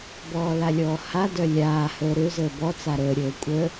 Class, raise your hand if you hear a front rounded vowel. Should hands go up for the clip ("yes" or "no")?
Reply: yes